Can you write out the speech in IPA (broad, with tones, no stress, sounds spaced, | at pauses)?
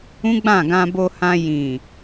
ũ˦ ɡ͡b ã˦˨ ɡ ã˧ b o˧ h ã˧ j ĩ˨